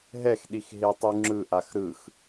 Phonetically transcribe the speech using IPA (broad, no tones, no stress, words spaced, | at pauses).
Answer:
ɦɛxɗix ɦetˤuŋ͡ǁɯʔax ɾɯx